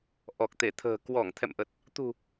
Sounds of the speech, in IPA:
ʔɔ˨˩k̚t̪e˧˩t̪ʰə̤ː˨˩ kwɔ˧˩ŋ t̪ʰɛ̰˧˨mʔə˨˩t̚ | t̪ṳ˨˩

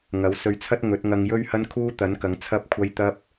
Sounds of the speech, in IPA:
ŋɐ˨˥wsɵ˧ɥ t͡sʰɐ˥t̚ ŋɵ˨˥t̚ŋɐ˧ŋ jɵ˥ɥhɐ˥nkʰuː˥ t̪ɐ˨˥nkɐ˨˧ŋ t͡sʰɐ˥p̚kʷʰɐ˥j t̪ɐ˥p̚

